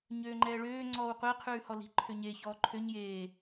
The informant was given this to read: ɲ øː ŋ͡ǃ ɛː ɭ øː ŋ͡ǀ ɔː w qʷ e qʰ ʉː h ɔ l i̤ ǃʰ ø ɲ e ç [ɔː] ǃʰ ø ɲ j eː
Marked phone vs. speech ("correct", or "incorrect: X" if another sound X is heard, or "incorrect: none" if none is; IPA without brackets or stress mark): correct